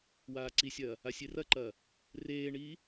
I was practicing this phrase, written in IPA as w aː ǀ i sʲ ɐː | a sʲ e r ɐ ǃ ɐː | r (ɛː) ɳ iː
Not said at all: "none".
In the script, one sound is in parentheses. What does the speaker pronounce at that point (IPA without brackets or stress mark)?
eː